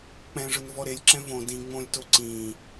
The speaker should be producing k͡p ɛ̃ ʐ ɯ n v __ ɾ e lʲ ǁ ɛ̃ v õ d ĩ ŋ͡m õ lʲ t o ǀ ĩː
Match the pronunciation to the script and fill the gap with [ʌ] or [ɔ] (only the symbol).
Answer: ɔ